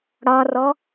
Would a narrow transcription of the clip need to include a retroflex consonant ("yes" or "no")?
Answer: yes